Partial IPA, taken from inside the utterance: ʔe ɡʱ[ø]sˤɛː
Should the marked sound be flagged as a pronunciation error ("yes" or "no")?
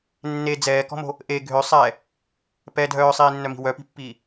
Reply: no